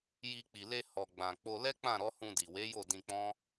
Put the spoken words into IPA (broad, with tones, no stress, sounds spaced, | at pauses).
j i˧ k͡p i˨ l e˧ h ɔ˨ ɡ͡b ã˨ k͡p o˧ l ɛ˦ k͡p ã˦˨ ɾ ɔ˨˦ h ũ˧ d i˨ w e˨˦ j o˦˨ d ĩ˧ k͡p ɔ̃˦